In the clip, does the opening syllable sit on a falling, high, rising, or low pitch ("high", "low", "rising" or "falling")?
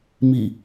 falling